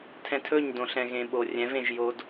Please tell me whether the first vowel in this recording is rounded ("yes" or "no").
no